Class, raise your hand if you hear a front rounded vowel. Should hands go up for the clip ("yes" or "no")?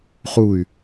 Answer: yes